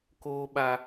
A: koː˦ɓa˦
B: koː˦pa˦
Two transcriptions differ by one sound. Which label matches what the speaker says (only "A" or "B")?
A